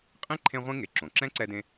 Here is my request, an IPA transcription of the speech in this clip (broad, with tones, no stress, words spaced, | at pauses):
qʼĩ˥ ǃʰẽ˥ʁʷĩ˥ ŋe˩ǁõ˩ǁɛ̃˥ ǀɛ˥dẽ˥